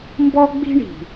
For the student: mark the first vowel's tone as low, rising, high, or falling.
high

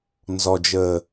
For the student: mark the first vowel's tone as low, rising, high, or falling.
low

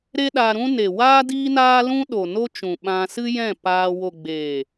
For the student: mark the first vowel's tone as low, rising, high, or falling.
high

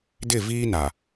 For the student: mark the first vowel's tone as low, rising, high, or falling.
falling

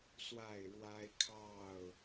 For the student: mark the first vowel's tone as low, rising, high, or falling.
falling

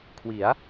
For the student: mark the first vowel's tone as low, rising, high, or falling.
rising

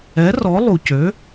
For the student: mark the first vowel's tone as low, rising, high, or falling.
rising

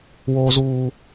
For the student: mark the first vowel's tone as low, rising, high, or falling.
high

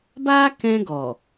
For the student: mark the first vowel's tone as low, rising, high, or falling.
high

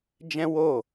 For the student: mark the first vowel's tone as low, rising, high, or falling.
high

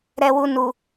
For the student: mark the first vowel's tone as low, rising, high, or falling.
low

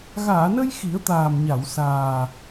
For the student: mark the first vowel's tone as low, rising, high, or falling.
low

